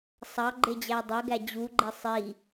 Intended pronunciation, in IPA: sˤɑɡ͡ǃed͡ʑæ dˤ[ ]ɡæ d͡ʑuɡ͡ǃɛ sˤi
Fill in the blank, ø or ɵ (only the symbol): ɵ